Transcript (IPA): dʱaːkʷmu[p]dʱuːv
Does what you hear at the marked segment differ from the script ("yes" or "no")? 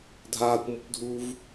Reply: no